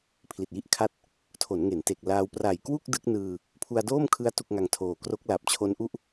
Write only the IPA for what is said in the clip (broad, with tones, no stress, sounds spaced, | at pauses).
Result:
pʰ l i˨˩ t̚ j i˥˩ ʔ kʰ a˥˩ t̚ | tʰ o˩˦ n ŋ e˩˦ n t e˨˩ k̚ l aː˧ w p r a˨˩ j k w u˥˩ k̚ d ɯ˦˥ k̚ n ɯː˧ | pʰ u˧ a̯ d oː˥˩ m kʰ ɯ˦˥ a̯ t u˥˩ k̚ ŋ a˧ ŋ tʰ oː˨˩ k r o˦˥ k̚ l a˨˩ p̚ t͡ɕʰ o˦˥ n ʔ u˥˩ ʔ